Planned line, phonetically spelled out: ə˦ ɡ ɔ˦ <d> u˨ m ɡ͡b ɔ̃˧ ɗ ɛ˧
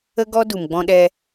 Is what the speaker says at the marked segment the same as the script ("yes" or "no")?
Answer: yes